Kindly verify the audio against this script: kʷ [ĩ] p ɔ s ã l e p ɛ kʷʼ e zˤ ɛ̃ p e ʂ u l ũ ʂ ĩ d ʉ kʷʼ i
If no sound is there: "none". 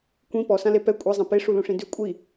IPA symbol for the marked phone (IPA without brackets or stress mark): ĩ